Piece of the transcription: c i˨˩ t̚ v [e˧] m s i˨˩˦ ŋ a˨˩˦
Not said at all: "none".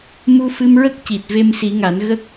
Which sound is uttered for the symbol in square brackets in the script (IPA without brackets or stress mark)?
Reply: e˧